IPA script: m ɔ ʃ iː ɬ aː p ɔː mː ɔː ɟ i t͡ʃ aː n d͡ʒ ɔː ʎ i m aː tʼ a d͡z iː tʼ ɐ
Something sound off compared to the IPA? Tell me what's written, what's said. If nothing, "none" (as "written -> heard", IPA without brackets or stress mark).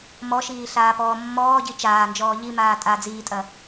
none